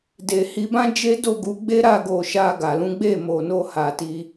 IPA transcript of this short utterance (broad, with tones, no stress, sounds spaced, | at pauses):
d e˨ h i˧ b ã˦ d͡ʒ e˦ d o˦˨ ɡ u˨˦ ɡ͡b e˦ ɾ a˦˨ ɡ o˨ ʃ a˧ ɡ a˨ l ũ˨˦ ɡ͡b e˦˨ m o˨ n o˧ h a˨ t i˧